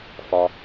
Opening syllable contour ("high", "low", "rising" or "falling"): low